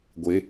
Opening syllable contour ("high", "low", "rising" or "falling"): rising